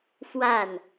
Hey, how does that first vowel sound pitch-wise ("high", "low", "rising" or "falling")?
falling